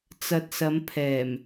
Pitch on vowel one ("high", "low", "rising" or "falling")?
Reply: low